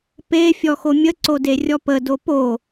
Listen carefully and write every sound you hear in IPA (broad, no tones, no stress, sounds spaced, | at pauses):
p e fʲ ɔ x o mʲ ə ǀ o d e rʲ ɔ p ə d o p o